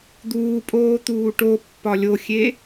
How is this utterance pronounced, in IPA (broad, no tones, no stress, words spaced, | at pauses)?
d̪uːpʼoːt̪uː ʈopːɒ lʲoxʲe